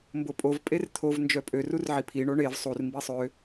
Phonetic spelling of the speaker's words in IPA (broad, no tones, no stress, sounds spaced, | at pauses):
m b o pʼ o v pʼ e r t̪ʰ o v n d͡ʒ œ pʼ ø r u r ʕ i pʰ i ɳ o ɳ e v sˤ u r m b i sˤ ø